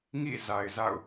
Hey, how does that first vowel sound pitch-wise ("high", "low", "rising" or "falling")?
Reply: falling